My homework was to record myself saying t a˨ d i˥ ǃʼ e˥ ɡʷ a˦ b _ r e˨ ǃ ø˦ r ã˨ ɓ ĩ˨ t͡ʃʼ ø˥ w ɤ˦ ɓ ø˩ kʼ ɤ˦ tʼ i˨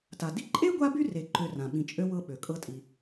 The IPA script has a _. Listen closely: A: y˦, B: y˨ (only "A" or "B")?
A